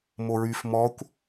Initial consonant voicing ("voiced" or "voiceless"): voiced